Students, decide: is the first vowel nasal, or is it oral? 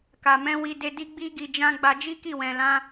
oral